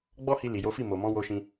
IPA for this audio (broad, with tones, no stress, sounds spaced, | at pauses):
ɡ͡b ɔ˦ h i˧ l i˨ j o˨˦ f i˦˨ m o˨ m ɔ̃˨˦ w o˧ ʃ ĩ˧